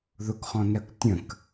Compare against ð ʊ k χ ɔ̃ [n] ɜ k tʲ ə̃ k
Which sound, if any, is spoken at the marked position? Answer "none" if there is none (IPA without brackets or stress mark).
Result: n